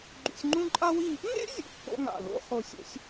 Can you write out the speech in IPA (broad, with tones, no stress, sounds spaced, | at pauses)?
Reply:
ɡ͡ǃ ṵ˧ sʲ ŋ͡ǃ ũ˥ ǃʼ a˥ w i˥˧ | ŋ ḛ˥ zʲ ṵ˥˧ kː o̰˥ ŋ a̰˧˩ l o̰˥ χ o˧ sʲ o̰˥ sʲ